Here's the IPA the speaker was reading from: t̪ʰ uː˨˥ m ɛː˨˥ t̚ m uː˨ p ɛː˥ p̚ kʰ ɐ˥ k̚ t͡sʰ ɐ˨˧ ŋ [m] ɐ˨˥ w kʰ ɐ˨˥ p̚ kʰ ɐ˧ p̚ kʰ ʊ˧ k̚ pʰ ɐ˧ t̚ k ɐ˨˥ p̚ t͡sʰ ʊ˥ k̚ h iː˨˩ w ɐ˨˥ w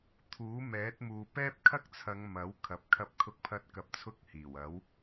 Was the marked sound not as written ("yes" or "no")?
no